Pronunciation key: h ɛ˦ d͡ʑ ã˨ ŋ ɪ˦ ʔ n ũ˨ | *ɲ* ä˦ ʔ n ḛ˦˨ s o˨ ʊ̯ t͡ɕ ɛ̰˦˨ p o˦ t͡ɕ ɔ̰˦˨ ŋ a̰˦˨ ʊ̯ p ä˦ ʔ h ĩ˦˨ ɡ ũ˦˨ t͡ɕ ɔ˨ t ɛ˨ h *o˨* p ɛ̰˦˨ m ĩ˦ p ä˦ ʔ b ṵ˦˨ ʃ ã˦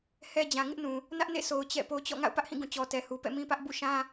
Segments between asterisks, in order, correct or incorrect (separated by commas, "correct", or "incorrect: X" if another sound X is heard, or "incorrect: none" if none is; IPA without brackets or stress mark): incorrect: n, incorrect: u˨